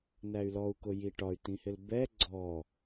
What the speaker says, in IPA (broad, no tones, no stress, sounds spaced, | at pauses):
n æ y̯ l ɔ u̯ k ʊ j i ʈ ɒ y̯ t ĩ h ɪ l b ɛ ɡ͡ǀ ɔ